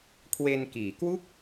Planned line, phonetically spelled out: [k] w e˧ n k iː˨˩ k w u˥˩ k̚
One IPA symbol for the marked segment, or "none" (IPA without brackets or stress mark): kʰ